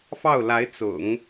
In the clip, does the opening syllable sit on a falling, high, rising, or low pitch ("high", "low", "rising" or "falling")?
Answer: falling